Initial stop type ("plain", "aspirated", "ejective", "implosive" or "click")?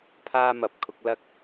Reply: aspirated